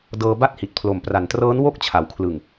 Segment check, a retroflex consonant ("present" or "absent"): absent